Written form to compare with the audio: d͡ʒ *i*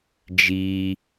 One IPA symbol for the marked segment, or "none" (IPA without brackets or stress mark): i